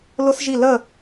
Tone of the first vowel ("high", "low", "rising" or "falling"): high